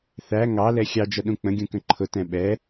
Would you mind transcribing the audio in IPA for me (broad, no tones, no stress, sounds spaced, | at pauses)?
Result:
θ æ ŋ ɑ l ɛ xʲ ɑ d͡ʒ ʌ ɗ ũ k͡p ə̃ ɡʲ ũ k ə̃ ǃʰ ʊ t ɛ̃ ɓ ɛ